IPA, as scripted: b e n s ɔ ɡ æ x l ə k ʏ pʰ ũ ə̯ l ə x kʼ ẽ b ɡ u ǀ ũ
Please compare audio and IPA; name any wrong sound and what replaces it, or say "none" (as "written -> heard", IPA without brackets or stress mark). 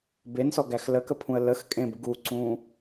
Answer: ʏ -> ə